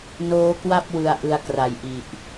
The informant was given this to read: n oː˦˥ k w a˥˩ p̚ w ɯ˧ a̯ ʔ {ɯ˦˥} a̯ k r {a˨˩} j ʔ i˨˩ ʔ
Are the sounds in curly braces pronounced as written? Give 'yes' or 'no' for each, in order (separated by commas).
no, yes